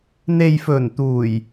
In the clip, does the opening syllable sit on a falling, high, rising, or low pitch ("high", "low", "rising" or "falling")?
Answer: low